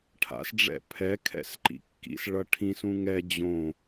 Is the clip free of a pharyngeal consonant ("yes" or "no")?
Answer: yes